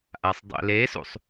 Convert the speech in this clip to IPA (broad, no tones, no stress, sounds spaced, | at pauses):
ʔ a sˤ dˤ ḛ l e s ṵ sˤ